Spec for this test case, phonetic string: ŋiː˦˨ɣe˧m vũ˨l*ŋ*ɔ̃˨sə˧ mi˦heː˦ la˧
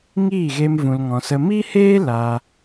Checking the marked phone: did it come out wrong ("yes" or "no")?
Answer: no